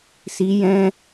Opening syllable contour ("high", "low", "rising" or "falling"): rising